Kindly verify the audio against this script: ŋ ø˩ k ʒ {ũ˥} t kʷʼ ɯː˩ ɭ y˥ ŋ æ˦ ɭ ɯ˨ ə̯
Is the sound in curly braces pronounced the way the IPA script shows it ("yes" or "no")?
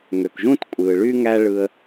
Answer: yes